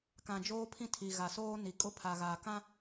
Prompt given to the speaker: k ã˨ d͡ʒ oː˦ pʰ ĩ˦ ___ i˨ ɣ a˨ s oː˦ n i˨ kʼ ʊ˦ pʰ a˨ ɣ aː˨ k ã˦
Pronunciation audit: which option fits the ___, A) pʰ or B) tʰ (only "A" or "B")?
B